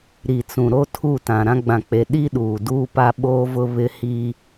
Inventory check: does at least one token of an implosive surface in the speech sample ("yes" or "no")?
yes